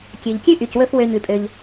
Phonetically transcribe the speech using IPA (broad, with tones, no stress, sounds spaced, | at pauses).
kʲ ø˩ ʎ kʲ ʉ˥ ʔ y˩ c w ɵ˧ f w ø˧ ɲ ʉ˩ pʼ ø˩ ʎ